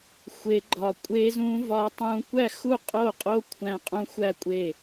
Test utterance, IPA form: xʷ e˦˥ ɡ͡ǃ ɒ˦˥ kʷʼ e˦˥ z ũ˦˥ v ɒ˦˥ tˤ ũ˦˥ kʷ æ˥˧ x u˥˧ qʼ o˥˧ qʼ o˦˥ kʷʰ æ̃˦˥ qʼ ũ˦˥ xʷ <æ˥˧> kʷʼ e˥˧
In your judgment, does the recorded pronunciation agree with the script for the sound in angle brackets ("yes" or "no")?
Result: yes